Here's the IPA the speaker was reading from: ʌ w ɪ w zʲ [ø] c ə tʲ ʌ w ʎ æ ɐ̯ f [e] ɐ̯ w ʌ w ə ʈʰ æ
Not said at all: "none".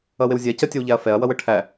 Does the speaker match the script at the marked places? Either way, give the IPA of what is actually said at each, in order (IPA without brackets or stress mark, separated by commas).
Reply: ɛ, ɛ